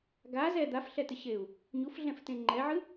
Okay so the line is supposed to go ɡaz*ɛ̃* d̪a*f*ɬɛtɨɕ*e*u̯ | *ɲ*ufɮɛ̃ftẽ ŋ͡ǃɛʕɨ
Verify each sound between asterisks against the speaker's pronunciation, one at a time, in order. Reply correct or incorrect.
incorrect: ɛ, correct, correct, correct

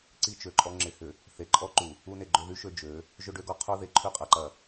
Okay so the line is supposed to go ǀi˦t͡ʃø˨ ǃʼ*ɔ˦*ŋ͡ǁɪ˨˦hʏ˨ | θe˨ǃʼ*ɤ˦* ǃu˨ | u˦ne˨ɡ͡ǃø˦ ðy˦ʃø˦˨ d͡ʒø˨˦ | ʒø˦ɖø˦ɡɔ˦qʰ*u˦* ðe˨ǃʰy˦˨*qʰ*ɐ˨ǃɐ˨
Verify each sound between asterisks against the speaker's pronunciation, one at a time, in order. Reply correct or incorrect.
correct, incorrect: ɔ˦, correct, incorrect: qʼ

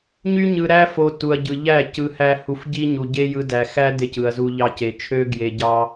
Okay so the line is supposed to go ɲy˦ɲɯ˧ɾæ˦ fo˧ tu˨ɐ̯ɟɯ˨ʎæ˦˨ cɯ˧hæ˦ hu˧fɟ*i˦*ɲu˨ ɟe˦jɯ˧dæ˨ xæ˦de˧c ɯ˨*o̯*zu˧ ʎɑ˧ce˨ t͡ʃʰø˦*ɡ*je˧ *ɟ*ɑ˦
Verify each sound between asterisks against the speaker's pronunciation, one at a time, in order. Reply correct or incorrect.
correct, incorrect: ɐ̯, correct, correct

